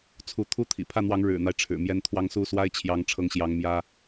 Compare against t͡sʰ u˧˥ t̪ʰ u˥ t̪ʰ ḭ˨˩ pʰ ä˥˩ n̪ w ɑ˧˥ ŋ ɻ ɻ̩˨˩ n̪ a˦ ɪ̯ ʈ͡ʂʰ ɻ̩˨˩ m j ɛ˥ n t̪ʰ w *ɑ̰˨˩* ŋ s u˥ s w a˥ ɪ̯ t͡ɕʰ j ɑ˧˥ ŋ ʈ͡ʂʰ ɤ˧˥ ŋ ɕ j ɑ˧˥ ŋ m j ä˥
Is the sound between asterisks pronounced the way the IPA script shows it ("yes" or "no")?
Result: no